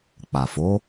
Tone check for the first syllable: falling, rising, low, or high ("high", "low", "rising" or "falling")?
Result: low